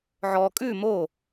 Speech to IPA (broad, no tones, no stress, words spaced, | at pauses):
ʕɔ kʼʉ mo